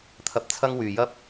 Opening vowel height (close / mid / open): open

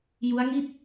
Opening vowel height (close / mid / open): close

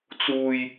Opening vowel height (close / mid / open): close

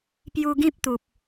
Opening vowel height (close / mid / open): close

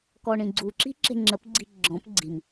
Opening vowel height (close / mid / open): mid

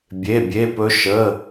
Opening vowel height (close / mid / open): mid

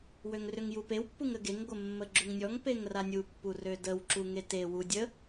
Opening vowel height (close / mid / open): mid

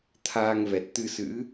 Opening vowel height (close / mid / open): open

